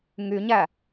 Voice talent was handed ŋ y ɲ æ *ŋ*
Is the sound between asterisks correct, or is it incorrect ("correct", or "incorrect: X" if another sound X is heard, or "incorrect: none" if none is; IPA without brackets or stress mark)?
incorrect: none